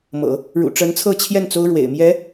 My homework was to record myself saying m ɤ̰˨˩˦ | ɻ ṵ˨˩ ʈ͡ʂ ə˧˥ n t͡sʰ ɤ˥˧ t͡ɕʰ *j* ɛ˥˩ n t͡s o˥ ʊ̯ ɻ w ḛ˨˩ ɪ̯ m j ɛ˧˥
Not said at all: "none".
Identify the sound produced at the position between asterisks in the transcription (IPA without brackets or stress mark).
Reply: j